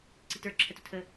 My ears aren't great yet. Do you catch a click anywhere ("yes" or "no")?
yes